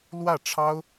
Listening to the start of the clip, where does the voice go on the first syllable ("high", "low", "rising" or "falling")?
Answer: falling